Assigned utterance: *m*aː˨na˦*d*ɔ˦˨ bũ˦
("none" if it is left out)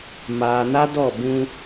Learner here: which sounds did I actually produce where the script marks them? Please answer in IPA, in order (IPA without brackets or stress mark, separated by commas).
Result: m, d